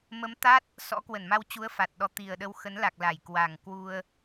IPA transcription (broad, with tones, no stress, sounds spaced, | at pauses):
m ə˨˦ m t̪ a˦˥ t̚ | s ɔ̰˧˥ k w ə˧˩ n m a˧ w t͡ɕ u˨˦ ə̯ f a˨˩ t̚ ɗ ɔ˨˦ t̪ i˨˩ ə̯ ɗ ə˧ w x ə˨˦ n l a˨˩ k̚ l a˧˩ j k w a˨˩ ŋ k w u˧ ə̯